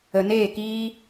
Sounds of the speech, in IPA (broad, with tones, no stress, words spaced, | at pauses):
ə˨neː˦˨kiː˦